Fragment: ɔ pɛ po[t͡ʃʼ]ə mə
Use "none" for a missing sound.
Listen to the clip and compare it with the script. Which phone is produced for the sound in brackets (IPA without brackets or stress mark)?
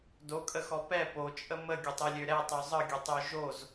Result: t͡ʃʼ